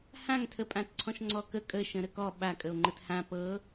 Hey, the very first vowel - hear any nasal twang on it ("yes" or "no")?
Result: yes